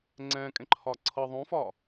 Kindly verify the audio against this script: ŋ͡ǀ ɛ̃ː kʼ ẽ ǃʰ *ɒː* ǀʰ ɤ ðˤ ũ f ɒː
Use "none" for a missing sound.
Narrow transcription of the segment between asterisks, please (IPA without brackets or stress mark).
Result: ɒː